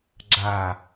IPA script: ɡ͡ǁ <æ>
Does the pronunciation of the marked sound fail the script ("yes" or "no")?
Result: yes